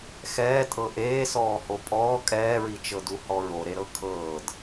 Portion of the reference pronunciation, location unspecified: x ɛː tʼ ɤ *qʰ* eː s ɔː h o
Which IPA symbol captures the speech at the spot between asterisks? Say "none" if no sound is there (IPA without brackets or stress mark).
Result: ʔ